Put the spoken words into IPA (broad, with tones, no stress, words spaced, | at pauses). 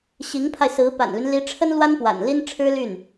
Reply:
ɕi˧˥ŋpʰa˧ɪ̯sɹ̩˧˥ pa̰˨˩nly˦nli˧˥ʈ͡ʂʰə˥n lwa˥npwa̰˨˩nli˥n ʈ͡ʂʰɻ̩˥ly˥˩n